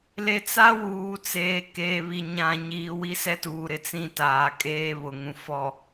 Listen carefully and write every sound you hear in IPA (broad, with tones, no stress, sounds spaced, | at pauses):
l e˨ t͡s a˦ w uː˨ t͡s eː˨ k e˨ β i˨ ɲ ã˨ ɲ iː˨ w i˦ s ɛ˦ t uː˨ ɾ ɪ˦ t͡s ĩ˦˨ t aː˨ kʼ eː˦ β ʊ˨ ŋ ũ˨ f ɔ˨